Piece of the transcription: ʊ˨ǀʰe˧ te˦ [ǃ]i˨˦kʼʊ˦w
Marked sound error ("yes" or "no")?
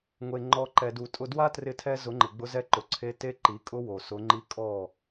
no